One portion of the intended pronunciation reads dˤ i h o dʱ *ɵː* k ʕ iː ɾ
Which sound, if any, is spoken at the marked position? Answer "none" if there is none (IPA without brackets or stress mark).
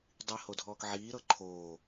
ɔː